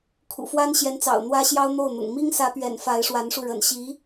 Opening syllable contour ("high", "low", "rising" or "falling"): low